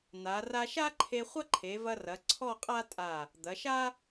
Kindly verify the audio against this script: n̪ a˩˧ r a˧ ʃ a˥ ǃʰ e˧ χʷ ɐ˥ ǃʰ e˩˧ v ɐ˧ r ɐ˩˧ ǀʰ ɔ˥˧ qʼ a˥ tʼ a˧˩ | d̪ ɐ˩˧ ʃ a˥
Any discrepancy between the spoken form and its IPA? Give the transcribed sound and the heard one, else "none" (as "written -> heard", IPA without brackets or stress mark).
none